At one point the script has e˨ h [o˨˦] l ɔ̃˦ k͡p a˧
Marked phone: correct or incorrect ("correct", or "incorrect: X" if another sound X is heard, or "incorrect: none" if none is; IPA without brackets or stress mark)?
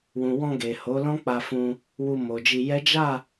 correct